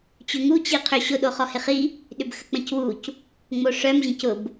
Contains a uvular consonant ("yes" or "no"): yes